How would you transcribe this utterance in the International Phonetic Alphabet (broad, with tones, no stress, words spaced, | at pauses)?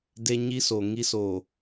de˦ɲi˦so˨ ŋi˦soː˨